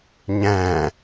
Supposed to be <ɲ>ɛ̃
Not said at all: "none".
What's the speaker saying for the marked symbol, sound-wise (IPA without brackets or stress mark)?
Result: ɲ